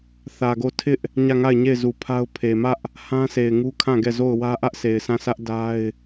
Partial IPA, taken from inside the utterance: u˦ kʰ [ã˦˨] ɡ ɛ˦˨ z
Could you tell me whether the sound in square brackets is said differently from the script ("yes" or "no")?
no